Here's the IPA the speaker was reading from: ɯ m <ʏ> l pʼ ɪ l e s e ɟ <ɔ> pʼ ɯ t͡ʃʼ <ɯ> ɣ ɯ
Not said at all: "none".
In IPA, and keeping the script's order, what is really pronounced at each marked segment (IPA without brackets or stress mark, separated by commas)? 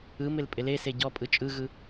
ɪ, ɔ, ɯ